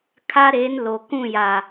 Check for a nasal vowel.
present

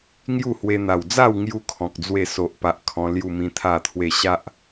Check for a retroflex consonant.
absent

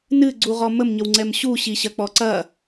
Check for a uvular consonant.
present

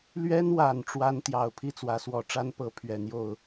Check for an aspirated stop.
present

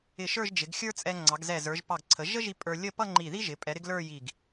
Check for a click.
present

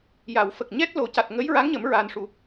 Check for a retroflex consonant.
present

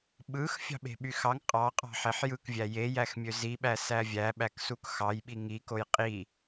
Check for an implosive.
present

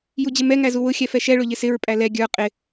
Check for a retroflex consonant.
present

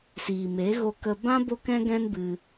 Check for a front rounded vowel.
absent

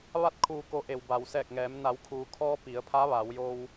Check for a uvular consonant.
absent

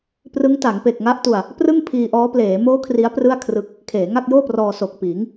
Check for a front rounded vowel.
absent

